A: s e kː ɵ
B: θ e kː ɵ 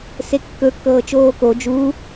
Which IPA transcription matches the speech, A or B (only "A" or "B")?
A